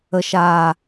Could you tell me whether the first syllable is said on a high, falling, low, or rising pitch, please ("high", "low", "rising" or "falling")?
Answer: low